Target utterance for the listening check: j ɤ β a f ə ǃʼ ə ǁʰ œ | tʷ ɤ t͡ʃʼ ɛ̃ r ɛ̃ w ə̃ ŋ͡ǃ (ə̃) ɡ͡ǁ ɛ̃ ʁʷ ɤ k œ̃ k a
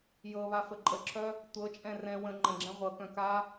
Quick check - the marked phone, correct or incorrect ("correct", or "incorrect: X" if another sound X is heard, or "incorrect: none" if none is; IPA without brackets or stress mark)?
correct